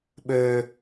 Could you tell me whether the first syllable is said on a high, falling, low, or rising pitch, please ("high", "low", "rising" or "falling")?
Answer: low